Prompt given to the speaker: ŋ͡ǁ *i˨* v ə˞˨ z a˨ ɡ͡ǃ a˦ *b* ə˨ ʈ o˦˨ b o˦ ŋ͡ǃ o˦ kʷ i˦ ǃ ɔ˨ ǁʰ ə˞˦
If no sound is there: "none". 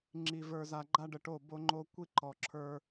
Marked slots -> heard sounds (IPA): i˨, ɖ

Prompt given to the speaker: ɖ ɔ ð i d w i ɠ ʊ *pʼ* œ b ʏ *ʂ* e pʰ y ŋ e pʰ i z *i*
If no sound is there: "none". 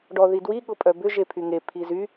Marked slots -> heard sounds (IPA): pʼ, ʒ, y

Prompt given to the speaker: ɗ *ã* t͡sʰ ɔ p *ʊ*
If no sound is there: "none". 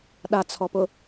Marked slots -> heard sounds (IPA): a, ʊ

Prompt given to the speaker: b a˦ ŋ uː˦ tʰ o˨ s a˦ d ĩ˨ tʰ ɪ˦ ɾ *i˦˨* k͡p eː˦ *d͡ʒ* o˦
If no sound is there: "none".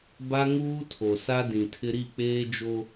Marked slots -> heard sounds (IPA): i˦˨, d͡ʒ

